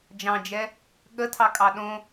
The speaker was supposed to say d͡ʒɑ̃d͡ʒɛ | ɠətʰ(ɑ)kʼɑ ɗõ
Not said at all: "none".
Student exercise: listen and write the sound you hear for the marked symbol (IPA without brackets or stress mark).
ɑ